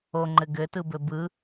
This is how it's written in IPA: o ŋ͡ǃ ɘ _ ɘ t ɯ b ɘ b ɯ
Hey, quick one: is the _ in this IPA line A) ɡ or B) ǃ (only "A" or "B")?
A